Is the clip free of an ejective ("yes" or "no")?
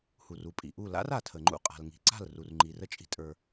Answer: no